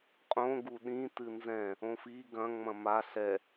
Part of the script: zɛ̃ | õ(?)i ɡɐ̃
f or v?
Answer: f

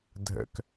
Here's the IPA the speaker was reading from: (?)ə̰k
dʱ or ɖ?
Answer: dʱ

